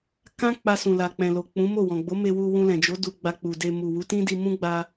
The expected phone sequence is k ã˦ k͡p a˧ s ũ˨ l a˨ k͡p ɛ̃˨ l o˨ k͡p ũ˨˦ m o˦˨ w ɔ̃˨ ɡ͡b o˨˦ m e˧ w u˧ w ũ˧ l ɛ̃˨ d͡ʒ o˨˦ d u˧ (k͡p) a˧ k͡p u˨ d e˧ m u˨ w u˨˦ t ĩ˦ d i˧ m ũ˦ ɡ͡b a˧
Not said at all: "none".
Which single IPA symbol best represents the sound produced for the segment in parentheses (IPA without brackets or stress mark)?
ɡ͡b